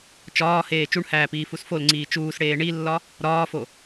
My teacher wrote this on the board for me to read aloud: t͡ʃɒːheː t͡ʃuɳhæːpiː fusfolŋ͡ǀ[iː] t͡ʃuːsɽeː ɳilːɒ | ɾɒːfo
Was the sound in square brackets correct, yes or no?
yes